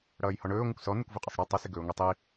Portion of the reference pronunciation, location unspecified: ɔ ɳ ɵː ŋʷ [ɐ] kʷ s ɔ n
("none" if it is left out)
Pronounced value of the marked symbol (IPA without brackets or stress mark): ə